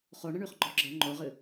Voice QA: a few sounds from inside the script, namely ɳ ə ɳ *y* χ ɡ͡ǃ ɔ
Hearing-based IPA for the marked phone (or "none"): y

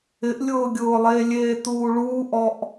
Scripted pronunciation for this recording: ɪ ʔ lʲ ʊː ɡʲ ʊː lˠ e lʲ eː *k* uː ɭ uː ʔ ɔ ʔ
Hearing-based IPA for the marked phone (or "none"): t̪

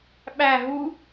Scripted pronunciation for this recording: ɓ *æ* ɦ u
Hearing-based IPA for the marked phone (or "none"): æ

